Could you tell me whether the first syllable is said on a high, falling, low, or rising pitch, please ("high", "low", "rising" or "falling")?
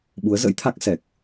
rising